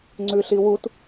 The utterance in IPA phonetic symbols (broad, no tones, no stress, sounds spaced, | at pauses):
ŋ͡ǀ ʉ ɬ i w u t